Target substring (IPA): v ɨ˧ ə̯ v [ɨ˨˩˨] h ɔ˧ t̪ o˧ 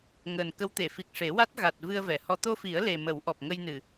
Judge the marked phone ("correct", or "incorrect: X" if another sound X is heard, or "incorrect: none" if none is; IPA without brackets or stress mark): incorrect: ɛ˨˩˨